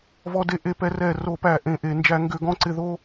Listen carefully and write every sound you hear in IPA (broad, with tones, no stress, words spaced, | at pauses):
vɔ˧de˧ ʔe˧pɛ˧ rɛ˧˩ ro˧˩˧pæ˧˩ ʔẽ˧˩ʔe˧˩ nd͡ʒæ˧˩˧ŋɡʏ˧˩˧ɡɔ̃˧ǀɪ˧˩ ðo˧